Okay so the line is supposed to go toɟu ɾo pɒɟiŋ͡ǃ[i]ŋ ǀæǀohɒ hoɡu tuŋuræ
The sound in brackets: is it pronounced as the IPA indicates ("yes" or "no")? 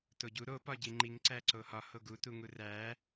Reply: yes